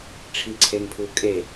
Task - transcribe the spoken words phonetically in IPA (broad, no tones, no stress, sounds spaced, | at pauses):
ʈ͡ʂʰ i ǀʰ e ŋ pʰ u kʼ e